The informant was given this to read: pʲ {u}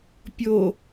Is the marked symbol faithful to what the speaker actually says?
no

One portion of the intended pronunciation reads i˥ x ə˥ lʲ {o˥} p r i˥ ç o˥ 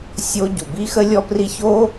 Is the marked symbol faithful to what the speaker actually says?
no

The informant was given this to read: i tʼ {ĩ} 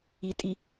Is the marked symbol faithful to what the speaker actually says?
no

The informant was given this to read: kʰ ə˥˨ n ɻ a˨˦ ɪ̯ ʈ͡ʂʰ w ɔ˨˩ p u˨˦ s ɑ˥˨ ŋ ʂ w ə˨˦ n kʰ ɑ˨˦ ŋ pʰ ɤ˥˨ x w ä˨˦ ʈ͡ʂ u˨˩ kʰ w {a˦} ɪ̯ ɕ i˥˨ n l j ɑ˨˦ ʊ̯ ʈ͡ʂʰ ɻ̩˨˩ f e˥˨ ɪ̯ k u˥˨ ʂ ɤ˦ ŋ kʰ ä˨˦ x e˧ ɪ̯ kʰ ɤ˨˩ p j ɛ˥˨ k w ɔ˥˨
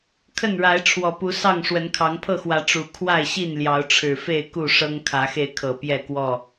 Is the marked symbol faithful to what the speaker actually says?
no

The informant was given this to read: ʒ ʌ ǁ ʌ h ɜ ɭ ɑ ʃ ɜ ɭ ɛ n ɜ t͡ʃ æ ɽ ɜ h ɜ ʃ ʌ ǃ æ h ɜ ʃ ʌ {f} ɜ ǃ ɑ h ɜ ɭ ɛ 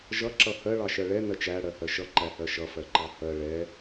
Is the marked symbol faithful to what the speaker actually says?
yes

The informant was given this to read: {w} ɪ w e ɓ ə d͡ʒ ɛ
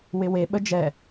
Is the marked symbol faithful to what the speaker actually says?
yes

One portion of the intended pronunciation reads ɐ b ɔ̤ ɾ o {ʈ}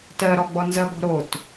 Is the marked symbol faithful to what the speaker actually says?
no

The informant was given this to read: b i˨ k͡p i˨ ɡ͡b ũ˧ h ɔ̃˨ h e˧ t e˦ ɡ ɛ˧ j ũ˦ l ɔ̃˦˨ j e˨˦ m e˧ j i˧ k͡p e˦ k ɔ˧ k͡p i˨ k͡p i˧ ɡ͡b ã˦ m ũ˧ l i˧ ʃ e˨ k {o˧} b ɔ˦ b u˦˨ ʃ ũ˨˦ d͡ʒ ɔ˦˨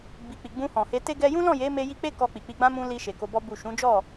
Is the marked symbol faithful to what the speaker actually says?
yes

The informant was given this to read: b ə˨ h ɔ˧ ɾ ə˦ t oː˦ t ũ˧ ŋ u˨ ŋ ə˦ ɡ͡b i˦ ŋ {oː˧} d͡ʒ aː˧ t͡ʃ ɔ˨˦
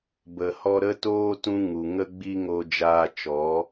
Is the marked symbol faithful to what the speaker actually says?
no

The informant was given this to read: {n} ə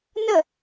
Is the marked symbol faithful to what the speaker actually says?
yes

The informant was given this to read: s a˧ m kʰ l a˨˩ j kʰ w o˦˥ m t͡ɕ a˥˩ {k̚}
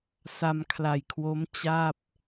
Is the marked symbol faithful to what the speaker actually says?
no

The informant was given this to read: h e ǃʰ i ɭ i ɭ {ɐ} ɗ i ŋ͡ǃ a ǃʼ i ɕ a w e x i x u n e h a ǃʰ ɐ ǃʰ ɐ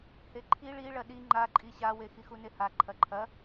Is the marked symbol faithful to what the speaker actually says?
yes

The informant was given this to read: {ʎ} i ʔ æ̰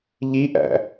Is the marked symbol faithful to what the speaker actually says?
yes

